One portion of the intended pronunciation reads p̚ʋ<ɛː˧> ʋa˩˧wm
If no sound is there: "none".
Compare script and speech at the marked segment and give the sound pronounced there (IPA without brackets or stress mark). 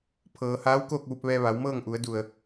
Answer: ɛː˧